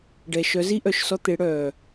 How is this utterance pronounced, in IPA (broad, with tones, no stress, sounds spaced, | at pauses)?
ɖ ɛ˨ ʃ œ˨˦ z i˦ ʔ œ˨ ʃ s ɔ˧ t̪ e˨˦ ɽ œ˨